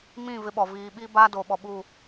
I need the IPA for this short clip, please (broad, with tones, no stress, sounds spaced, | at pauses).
m ĩ˦˨ v ɪ˦ ɓ ɔ˨ v iː˨ ɓ i˦ b aː˦ d o˨ ɓ ɔ˨ ɓ u˦˨